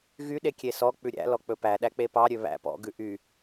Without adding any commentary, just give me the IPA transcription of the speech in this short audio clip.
ɣ y ɗ e kʲ e s ɔ k͡p ʉ ɾʲ æ̰ l ɔ k͡p ɵ p æ ɗ æ k͡p e p ɑ ɾʲ ø β æ̰ p ɔ̰ ɡ ʉ ʔ y

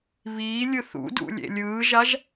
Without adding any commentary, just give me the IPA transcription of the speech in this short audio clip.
β iː lʲ ɯ θ ṵ d ṵ lʲ ḛ lʲ ɯː ʒ a ʒ

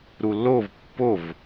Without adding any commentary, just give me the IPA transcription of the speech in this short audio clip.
ɾ u lː o v pː o v

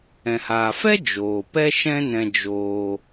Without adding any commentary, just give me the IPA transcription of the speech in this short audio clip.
ɛ̃˨ h aː˨ f ɛ˦ d͡ʒ oː˨ p ɛ˦ ʃ ɛ̃˦ n ɛ̃˧ d͡ʒ oː˧

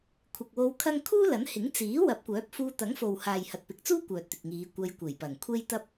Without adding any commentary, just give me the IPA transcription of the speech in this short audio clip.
kʷʰ ɪ˨ k̚ w o˧ w kʰ ɐ˥ ŋ kʰ uː˥ l ɐ˨˥ n h ɪ˨˥ ŋ t͡s iː˨˥ w ɐ˨˥ p̚ kʷ œː˨˥ p̚ f uː˧ t̪ ɐ˨˥ ŋ f o˨ w h aː˨ j h ɐ˨ t̚ p ɪ˨ k̚ t͡s uː˥ kʷ œː˨ t̚ t̪ ɪ˨ k̚ ŋ iː˨˧ kʷ ɐ˧ j kʷ e˨˩ j p ɐ˨˩ ŋ kʷʰ e˥ j t̪ ɐ˥ p̚

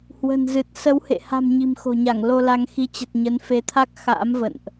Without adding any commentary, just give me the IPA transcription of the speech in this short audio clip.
h w ə̤˨˩ n z ɨ˨˩ t̚ s ə˨˦ w h ḛ˧˨ h a̤˨˩ m ɲ i̤˨˩ m x o̤˨˩ ɲ a˧˩ ŋ l o˧ l a˧ ŋ x i˧ t͡ɕ ə˨˩ t̚ ɲ ə˨˦ n f e˨˦ t̪ʰ a˦˥ k̚ x a̰ː˧˥ m v ə̰˧˨ n ʔ

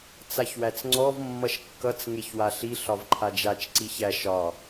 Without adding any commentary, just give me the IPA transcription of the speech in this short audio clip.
t͡s a ç w æ t͡s ŋ͡ǀ ɔ v mː ʌ ʃ kː ʌ t͡s ŋ e ç w a ɬ i ɬ ɒ v ǃʰ a d͡ʒ a t͡ʃ ǀ i ç æ ʃ ɒ

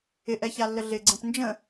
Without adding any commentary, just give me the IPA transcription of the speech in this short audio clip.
ɪ ʔ ɛ ç a lː ə ɮ ɪ ɡ͡ǀ ə̃ p n d͡ʒ ə̃

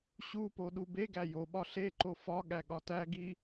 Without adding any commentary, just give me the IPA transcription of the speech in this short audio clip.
ɕ u p o ɗ u b e ɡ æ j o ɓ ɒ ɬ e ǃ o f ɒ ɠ æ ɠ ɒ t æ ɡ i

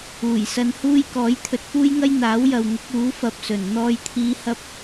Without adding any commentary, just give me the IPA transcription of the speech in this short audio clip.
uː˨˩ j s ɐ˧ n h uː˥ j k ɔː˨˥ j t̪ʰ ɵ˨ t̚ f uː˥ j ŋ ɐ˥ j n̪ aː˨˥ w j ɐ˨ w ŋ ʊ˨˥ k̚ uː˨˥ f ɐ˧ p̚ s ɵ˨˩ n n̪ ɔː˧ j t̪ʰ iː˧ h ɐ˥ p̚

